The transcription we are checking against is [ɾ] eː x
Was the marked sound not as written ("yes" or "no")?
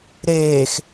no